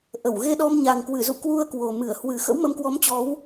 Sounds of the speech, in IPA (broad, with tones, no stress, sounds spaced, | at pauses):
ʔ ə˧˩ w ɣ e˧ ɗ ɔ˧ m ɲ a˨˩ ŋ k w ɨ˧˩ z ṵ˧˨ k w u˧ ə̯ k w o˨˩ m ɨ˧˩ ə̯ h w ɨ˨˩ x ə̰˧˥ w m ə˨˦ m k w ɔ˨˦ m t͡ɕ ɔ˨˦ w